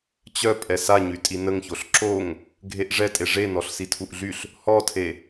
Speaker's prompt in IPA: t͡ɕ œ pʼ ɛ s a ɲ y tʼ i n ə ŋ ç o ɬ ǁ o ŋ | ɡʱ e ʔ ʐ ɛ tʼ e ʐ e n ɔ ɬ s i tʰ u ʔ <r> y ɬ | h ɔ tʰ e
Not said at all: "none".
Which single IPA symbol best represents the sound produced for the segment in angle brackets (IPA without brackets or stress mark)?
ɮ